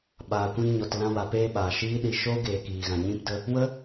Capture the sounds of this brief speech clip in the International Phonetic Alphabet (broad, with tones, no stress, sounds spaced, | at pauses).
ɓ aː˨ kʷ ĩ˧ n ɲ ɔ˨ t l ã˧ w a˨ p eː˧ ɓ aː˨ ʃ iː˦ ɗ i˧ ʃ oː˦ ɡ eː˨ k iː˨ ɣ ã˨ ɲ ĩ˧ p d ə˧ | w ə˦